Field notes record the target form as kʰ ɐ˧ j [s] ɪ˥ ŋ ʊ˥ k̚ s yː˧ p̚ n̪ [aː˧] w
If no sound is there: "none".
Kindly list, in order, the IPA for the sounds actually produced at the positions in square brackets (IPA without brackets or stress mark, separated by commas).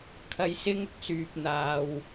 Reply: s, aː˧